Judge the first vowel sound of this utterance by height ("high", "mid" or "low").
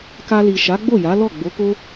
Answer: low